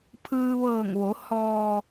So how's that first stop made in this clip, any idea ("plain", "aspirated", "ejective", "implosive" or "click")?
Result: aspirated